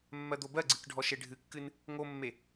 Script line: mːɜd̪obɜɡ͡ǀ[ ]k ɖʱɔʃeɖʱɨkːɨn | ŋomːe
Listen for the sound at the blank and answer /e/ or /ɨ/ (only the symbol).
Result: ɨ